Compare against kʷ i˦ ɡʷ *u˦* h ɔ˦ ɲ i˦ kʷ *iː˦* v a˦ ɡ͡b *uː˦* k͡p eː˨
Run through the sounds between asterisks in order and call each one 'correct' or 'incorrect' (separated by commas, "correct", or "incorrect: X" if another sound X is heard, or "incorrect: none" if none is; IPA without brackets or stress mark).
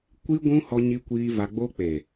incorrect: ũ˦, correct, incorrect: oː˦